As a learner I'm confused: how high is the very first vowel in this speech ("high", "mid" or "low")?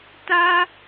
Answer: low